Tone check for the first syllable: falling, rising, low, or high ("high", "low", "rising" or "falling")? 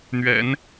low